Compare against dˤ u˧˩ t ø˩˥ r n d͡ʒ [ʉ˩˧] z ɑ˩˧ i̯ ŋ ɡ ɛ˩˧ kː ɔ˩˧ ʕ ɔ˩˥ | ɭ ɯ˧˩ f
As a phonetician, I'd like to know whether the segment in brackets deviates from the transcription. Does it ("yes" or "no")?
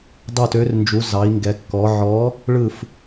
yes